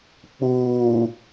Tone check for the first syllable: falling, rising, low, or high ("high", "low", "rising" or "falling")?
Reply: low